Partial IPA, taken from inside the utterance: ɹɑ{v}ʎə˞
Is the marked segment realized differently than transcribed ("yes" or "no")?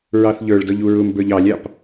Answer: yes